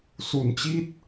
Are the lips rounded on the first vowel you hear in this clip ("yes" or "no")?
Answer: yes